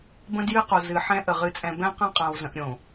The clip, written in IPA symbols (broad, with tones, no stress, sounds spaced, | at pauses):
b ə̃˦ d j ɨ˦ q o˨ z ɨ˨ ħ ɛ̃˦ ʔ ə˨ ʁ ɨ˨ t͡sʼ ɛ̃˨ b ɛ̃˦ q ã˦ qʼ ã˨ w z ə̃˨ ʔ ɾʲ õ˨